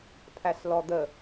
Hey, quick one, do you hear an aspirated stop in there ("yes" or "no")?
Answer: yes